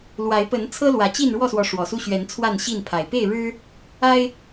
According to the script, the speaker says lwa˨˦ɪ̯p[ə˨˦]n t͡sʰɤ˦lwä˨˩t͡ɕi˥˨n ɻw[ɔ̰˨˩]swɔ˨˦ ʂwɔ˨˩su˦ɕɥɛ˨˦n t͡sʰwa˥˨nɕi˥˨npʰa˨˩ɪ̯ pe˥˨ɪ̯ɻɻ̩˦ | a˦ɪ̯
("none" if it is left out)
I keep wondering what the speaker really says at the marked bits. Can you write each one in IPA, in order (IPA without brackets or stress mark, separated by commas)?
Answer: ə˨˦, ɔ˥˨